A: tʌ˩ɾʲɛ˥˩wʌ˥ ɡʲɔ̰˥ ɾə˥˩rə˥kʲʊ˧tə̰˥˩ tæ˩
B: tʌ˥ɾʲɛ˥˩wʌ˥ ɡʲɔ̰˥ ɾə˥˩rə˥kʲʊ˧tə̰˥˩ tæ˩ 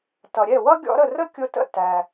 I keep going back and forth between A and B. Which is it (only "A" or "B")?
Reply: A